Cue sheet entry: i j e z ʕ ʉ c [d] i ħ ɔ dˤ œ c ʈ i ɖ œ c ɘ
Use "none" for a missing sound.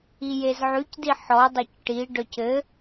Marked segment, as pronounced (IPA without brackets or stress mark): d